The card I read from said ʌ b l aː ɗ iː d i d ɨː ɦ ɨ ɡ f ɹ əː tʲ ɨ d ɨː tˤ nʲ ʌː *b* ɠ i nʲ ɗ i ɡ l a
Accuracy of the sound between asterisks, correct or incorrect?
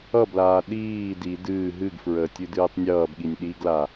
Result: correct